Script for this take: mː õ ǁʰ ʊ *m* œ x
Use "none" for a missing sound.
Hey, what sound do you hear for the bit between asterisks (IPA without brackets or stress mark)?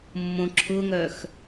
ŋ